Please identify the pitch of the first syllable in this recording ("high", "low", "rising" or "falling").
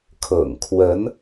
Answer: low